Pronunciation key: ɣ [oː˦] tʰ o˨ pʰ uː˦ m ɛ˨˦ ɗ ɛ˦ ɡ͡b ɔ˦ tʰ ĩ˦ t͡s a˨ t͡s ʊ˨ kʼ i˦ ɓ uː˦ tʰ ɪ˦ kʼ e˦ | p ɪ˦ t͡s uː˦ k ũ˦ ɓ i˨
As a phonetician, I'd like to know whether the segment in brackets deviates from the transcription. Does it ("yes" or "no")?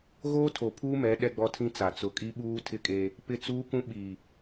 no